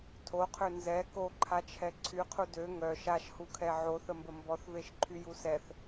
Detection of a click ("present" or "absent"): present